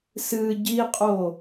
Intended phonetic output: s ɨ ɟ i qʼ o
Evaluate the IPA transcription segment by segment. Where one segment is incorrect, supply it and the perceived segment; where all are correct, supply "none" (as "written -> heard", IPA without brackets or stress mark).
none